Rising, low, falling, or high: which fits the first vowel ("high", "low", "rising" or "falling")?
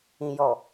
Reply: low